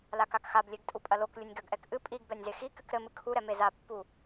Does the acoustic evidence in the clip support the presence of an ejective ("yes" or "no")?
yes